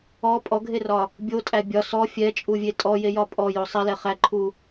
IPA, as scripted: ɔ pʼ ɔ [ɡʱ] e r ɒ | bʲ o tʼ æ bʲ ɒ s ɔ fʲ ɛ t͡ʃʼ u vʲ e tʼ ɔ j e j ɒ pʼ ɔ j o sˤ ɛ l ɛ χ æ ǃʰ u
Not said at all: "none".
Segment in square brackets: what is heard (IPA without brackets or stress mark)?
ɡʱ